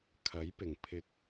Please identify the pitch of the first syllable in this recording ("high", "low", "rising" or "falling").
rising